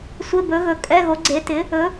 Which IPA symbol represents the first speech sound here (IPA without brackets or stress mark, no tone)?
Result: sʷ